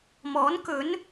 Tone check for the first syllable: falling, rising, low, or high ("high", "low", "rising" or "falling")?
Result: rising